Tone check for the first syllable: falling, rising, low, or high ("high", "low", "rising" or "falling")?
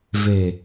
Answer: low